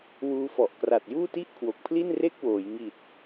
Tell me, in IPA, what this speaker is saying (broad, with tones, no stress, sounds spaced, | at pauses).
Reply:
w uː˧ f ɔ˨˩ ʔ k r a˨˩ t̚ j uː˥˩ t i˥˩ ʔ kʰ w o˨˩ k̚ pʰ l i˥˩ n r e˥˩ k̚ w oː˩˦ j ŋ i˨˩ t̚